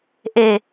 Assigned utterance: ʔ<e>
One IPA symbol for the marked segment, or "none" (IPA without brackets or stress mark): e